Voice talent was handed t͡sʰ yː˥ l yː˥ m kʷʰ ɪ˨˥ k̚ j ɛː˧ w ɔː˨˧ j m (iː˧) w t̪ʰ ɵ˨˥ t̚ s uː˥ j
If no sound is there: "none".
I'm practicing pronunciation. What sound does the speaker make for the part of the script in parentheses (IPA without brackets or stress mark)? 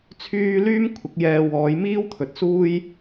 iː˥